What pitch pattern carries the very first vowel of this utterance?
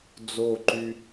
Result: falling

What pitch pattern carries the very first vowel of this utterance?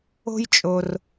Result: high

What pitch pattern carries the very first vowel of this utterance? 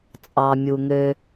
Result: low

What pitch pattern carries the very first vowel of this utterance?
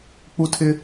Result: high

